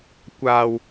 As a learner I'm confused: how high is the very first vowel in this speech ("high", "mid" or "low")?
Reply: low